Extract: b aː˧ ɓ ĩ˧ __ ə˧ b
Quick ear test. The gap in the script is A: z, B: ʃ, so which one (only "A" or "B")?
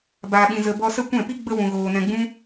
A